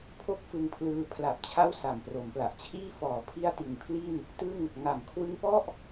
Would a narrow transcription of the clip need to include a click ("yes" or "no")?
no